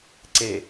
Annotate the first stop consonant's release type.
click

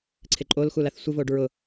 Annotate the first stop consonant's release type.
click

